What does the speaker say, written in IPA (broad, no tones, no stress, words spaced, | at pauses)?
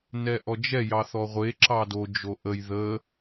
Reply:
nɛʔɔd͡ʒɛ jɑθɔʁʷe ǁɑdo d͡ʒoʔəj ðə